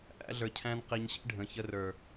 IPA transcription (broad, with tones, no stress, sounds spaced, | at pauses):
ʔ æ̰˧ ɮ ə˞˨ cʰ æ̃˧ n q i˨ ɲ ɕ ḭ˦ ɖʱ ə̃˨ ç ə˧ r ə˞˨